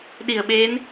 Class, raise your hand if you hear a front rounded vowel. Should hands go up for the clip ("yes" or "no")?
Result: no